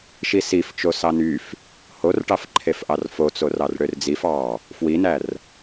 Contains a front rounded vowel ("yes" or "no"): yes